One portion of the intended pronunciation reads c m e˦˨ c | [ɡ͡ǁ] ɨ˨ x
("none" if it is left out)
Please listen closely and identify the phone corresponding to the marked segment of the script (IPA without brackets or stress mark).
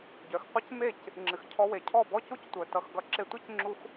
ŋ͡ǁ